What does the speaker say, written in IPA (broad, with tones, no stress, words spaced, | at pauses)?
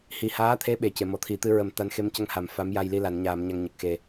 hi˨˩haː˧˥t̪ʰe˧˥ ɓe˨˩ce˨˩˨mɔ˨˩ t̪ʰi˨˩˨t̪ɨ˧ɹə˨˩˦m t̪a˧˥nxe˧˥mcə˧ŋha˨˩˨m fa˧˥mja˧jli˧ la˨˩˨nɲaː˨˩˨m ɲa˧ŋɲə˨˩k̚xe˨˩